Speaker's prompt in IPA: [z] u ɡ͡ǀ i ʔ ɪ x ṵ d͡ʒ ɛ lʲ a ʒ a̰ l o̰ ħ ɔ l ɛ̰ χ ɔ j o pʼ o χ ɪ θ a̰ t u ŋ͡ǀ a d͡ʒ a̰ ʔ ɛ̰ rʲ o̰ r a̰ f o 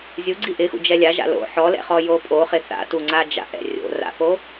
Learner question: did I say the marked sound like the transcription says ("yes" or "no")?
no